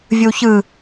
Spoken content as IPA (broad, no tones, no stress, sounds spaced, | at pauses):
vʲ ɯ w ç ɯ